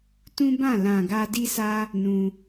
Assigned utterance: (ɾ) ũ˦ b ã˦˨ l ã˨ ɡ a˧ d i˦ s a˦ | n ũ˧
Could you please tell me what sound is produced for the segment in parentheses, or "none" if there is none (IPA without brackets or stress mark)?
t